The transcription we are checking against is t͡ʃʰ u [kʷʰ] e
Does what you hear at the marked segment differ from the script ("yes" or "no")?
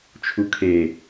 yes